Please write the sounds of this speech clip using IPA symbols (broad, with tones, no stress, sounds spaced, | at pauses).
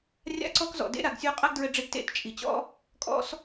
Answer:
rʲ a̰˥ ǀ ɔ˥ k z ɔ̰˩ d ḛ˥ ɾ a˩ ɡ sʲ o˧ qʼ a˥ ɡ d ɹ ɘ˧ ɖ͡ʐ e˧ ɡ t ḛ˥ t t͡ʃʼ i˩ t͡ɕ ɔ̰˥ | kʼ ɔ̰˧ s